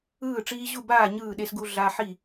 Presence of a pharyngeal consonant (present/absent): present